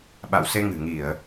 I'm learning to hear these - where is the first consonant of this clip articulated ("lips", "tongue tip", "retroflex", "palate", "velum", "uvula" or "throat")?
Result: lips